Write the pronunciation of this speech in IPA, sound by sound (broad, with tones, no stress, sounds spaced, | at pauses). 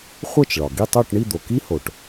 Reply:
χʷ ɜ˥˧ t͡ʃ ɭ ɒ˩ ɡ i˥˧ tˤ o˥˧ ʈ ɳ i˥˧ d̪ o˩ k i˥ h o˩ ʈ